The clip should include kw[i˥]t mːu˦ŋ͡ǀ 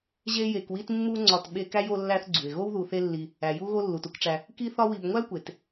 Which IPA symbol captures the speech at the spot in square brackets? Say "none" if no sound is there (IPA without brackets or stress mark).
i˦